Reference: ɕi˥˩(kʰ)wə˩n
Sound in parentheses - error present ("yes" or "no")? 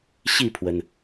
yes